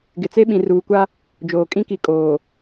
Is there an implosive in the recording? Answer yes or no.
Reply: yes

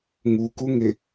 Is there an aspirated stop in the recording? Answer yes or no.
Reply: no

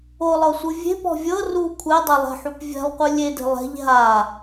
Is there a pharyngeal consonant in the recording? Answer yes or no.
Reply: yes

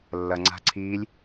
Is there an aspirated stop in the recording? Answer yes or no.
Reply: yes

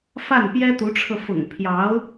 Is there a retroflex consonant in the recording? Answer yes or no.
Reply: yes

